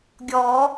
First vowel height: mid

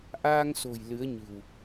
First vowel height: low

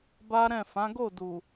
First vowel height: low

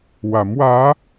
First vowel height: low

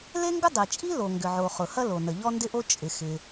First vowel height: mid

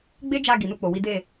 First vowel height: mid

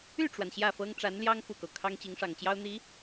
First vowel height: high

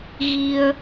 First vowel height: high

